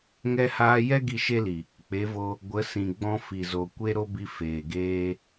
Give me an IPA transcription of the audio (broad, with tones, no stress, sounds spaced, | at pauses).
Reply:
ŋ ɛ˧ h aː˧ j ɛ˦ ɡ i˦˨ ʃ e˦ l i˨ | k͡p e˨˦ v o˧ | ɡʷ ə˨˦ s ĩ˨ ɡ͡b ɔ̃˧ f i˨ z o˨ kʷ e˦ ɾ o˦ b i˧ f eː˨ ɡ eː˧